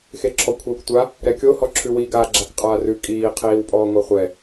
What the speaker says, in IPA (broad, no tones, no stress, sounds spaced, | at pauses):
x e ǁʰ ɔ kʷʰ ɛ kʷ tʷ a | ɾ ɛ kʲ o h ɔ ǁʰ ʉ w i ɡ a ɡ͡ǁ a k qʼ aː r ʉ kʼ iː qʰ iː w pʼ ɔː ŋʷ a χʷ ɛ